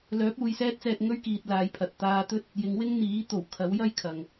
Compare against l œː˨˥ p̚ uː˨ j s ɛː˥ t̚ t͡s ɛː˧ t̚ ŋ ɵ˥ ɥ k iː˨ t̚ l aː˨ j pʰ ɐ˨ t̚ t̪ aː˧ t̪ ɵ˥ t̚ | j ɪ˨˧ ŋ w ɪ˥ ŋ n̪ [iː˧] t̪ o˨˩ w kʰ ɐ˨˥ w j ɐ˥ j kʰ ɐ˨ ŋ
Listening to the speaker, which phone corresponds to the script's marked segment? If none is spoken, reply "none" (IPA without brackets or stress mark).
iː˨˥